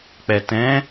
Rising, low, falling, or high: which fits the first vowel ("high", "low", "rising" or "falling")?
low